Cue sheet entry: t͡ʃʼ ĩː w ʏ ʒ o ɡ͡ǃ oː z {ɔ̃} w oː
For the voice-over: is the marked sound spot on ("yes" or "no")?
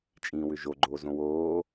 no